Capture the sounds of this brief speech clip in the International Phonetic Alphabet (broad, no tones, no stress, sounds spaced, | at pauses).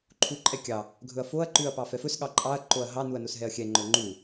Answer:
ǃʰ u ǃʼ ɛ kʲ ɑ | ɡʱ ɵ ɐ̯ f o ɐ̯ ǃ ʉ ɐ̯ p ɑ f ɛ f ɵ s ɠ ɑ ǃʼ ɑ ɐ̯ ǃ o ɐ̯ ɦ ɑ n u ɐ̯ n o s ɦ ɛ ɐ̯ xʲ ɛ ŋ͡ǃ ɵ ŋ͡ǃ u